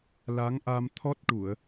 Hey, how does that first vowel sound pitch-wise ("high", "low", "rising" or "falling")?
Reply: rising